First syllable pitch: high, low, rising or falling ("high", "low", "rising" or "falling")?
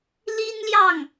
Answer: high